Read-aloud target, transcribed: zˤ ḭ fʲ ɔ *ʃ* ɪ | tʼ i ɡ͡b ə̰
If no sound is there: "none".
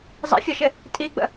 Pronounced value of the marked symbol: ʃ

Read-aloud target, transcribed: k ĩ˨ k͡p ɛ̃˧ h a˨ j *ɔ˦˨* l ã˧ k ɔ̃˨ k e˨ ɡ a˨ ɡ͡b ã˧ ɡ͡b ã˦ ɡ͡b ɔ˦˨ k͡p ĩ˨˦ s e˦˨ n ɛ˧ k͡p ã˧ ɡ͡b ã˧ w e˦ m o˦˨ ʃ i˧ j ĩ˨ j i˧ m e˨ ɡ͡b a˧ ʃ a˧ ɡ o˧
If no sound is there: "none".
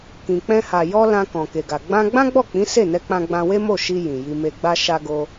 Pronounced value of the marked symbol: ɔ˧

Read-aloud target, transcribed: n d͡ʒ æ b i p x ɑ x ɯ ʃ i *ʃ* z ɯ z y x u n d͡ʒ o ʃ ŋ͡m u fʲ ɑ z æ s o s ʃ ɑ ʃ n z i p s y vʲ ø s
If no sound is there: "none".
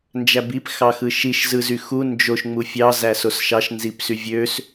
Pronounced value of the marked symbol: ʃ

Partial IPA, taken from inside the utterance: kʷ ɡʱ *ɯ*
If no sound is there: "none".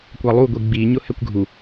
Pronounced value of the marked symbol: u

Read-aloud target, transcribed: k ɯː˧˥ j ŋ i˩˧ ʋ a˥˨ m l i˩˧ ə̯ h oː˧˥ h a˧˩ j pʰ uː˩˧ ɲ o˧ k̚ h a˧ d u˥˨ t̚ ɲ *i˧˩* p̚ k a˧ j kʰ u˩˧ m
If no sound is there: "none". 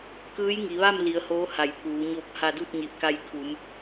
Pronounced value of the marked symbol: i˧˩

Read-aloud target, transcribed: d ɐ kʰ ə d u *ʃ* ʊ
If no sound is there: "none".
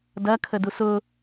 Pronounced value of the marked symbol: s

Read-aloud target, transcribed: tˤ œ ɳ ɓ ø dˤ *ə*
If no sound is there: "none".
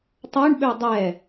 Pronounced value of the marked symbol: ɛ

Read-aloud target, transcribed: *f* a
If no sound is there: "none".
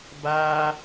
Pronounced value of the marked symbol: b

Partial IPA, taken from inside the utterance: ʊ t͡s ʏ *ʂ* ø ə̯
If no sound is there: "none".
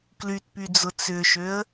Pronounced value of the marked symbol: ʃ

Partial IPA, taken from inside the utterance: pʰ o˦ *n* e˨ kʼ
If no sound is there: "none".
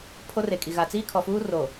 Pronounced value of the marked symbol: r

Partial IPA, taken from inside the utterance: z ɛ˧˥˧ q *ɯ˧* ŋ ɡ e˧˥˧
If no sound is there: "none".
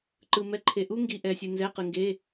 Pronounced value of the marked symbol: ɯ˧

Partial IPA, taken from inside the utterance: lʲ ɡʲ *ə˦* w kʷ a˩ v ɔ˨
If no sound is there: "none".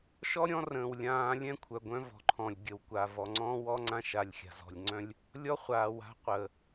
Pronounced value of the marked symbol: ə˩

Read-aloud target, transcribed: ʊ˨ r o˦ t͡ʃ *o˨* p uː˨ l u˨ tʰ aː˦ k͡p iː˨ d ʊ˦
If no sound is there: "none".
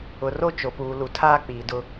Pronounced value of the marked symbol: o˨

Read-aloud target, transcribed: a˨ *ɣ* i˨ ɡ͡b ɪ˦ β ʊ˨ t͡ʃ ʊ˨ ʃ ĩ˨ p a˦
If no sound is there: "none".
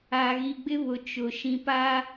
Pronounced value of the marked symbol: ɣ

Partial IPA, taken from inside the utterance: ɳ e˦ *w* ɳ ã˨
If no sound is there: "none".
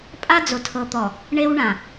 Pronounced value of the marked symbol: w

